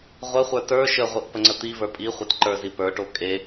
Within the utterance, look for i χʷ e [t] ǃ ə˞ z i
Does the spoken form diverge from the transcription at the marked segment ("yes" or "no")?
no